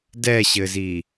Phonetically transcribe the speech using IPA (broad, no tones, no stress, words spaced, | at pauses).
dɛɕɘzi